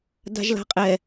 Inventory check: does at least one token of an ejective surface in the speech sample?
yes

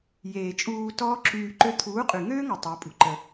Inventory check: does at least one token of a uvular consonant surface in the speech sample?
yes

